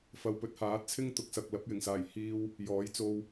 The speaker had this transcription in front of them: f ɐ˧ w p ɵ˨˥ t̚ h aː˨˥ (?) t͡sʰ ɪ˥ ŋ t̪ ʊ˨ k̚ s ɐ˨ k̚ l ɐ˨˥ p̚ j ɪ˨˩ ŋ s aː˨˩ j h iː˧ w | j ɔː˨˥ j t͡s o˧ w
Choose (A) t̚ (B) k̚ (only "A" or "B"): A